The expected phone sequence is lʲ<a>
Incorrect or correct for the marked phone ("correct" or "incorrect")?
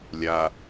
correct